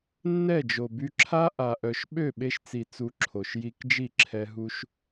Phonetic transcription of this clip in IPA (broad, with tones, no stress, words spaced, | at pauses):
nːɛ˦˨d͡ʒo˨by˧ǁʰa˦ ʔa˨ʔœ˨ʃ ɓø˦˨ɓe˧ʃt͡si˨ t͡su˧ǁʰo˨ʃ ji˧kd͡ʒi˦˨ǁʰɛ˧ ɦu˦ʃ